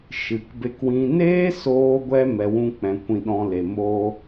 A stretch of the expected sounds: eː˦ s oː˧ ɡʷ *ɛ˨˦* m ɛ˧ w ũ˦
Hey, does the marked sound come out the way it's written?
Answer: no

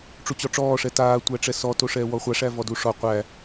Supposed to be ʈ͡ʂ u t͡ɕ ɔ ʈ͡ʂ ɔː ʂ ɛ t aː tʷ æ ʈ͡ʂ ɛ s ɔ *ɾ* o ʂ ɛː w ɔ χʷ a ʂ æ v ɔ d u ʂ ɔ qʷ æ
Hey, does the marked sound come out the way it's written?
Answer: no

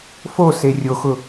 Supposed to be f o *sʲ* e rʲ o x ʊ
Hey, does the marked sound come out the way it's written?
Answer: no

